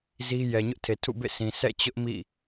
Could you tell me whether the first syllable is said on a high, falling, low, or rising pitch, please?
high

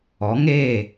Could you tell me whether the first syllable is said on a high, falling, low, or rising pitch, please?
rising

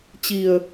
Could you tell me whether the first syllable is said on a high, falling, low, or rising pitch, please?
low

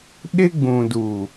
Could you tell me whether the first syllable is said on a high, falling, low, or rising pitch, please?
high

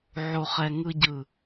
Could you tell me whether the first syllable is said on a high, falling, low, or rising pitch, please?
low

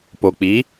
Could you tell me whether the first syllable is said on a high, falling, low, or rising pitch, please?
low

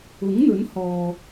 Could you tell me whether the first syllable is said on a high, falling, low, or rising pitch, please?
rising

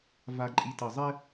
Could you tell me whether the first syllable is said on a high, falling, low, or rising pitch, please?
low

